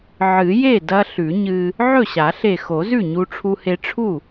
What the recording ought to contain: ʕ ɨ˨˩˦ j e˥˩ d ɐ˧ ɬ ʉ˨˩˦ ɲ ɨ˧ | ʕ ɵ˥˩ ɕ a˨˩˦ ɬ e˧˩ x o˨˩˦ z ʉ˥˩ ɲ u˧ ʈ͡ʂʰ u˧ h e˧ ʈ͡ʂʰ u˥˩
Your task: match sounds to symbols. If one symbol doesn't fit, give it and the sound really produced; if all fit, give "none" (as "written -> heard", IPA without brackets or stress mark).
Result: none